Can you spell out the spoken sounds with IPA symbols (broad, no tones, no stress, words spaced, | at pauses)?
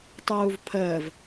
tˤuːvpʰəːv